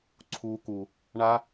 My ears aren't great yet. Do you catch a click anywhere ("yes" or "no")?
yes